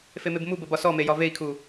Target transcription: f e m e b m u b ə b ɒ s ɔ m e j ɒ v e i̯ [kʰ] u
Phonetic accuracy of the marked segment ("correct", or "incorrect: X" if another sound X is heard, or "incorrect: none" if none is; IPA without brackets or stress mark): correct